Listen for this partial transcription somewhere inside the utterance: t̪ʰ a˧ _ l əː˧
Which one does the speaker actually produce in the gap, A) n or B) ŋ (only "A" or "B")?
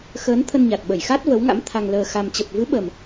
B